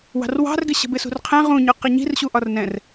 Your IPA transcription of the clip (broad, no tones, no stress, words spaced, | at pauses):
wɑ̤rwɑ̤rɡɪ ɕə̤bɪsṳrqʰɛ̃ ʁũɲʊ qɪɲi̤rɕuʔɒr nɛ̃r